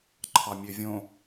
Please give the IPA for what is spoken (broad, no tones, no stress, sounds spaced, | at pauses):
ǃʰ ɑ mʲ ø vʲ õ